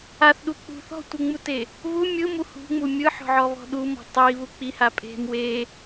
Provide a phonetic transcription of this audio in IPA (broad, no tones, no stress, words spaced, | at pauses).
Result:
aθɗu k͡pṳ θɔ̤tʷɯŋ͡mute | βu mʲɯmu hṳŋ͡mu mʲɯħɔ̤ʕɔβɔ̤ ɗumɔ̤ tˤiβu k͡piha pʼe̤m we